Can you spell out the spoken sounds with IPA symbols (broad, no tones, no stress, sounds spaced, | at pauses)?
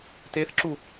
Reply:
t e θ ǁ u